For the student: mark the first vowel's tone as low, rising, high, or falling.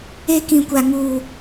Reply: high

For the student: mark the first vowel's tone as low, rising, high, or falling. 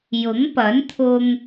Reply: rising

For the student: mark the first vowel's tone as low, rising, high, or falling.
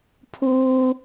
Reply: low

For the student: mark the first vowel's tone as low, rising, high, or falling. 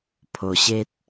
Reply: low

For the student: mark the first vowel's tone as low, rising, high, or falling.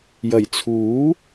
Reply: low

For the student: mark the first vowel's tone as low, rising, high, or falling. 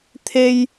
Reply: high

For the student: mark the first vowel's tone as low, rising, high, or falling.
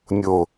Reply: low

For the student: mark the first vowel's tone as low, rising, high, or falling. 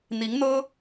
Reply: rising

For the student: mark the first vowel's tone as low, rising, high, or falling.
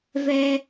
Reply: high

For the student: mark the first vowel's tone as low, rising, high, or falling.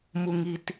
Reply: low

